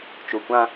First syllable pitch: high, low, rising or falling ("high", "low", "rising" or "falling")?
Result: low